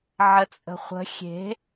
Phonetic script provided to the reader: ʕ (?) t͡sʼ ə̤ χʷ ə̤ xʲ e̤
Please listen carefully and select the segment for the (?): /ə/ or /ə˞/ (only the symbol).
ə